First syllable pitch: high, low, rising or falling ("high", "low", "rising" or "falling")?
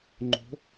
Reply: rising